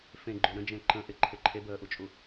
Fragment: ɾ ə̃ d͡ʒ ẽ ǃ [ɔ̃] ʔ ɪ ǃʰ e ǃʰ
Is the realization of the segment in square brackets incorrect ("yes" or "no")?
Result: yes